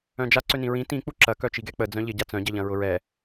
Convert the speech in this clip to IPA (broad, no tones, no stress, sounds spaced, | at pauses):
œ̃ d͡ʒ a ǀ ø n ĩ ɹ ĩ t ĩ k͡p u ǁ ɐ k œ t͡ʃ i ɡ ɛ k͡p ə d͡z œ̃ ʎ ɪ ɟ a t͡s œ̃ ɟ ɐ ʎ ɐ̃ ɹ ʊ ɹ ɛ